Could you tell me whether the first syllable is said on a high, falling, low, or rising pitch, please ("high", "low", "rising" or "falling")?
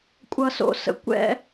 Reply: low